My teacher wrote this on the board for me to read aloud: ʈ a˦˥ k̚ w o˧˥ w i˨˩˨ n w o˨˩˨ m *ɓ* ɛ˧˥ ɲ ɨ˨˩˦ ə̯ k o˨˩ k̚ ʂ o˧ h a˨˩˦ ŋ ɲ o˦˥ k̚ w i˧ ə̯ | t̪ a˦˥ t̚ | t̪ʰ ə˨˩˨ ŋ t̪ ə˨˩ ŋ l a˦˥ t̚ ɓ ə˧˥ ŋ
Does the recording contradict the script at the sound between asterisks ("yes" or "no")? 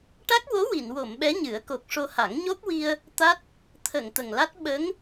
no